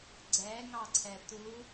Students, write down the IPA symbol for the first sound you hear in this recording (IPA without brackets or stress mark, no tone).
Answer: ɡ͡ǀ